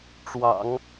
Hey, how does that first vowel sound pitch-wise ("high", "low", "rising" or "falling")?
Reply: low